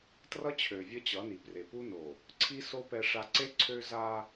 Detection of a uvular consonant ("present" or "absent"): absent